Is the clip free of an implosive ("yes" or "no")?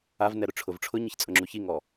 yes